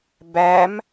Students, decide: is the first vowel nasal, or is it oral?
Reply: oral